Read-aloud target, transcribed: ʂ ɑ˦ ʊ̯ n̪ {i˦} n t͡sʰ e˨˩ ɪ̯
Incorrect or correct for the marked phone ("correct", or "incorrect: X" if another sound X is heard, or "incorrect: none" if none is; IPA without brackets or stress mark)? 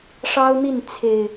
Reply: incorrect: i˥˨